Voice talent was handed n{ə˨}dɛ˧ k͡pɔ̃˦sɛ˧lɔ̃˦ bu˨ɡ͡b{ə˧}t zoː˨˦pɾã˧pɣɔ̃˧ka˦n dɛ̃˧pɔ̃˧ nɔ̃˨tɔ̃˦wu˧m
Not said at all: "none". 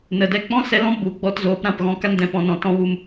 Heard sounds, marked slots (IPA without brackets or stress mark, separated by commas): ə˨, ɔ˧